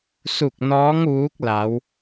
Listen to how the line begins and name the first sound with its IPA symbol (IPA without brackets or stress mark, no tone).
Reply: s